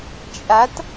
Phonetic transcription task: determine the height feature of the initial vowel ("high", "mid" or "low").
low